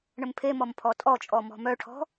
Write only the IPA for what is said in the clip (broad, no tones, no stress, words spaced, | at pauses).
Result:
ɳəmpʰemɔm pʰɔtʼɔt͡ʃʼɔ mɔ̤mœʈʰɔ̤